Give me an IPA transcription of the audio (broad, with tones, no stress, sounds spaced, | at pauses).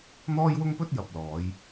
n̪ ɔː˥ j w ʊ˥ ŋ p ɵ˥ t̚ j ɐ˨ p̚ l ɔː˨˧ j